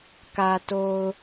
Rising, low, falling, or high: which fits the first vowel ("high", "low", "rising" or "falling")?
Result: low